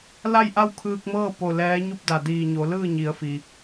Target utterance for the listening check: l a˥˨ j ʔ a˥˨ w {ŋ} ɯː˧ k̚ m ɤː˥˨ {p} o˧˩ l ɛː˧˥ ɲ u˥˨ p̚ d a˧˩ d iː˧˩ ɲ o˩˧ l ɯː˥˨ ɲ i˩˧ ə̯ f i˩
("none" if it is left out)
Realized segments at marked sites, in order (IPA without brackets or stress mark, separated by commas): kʰ, p